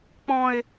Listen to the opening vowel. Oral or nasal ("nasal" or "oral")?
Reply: nasal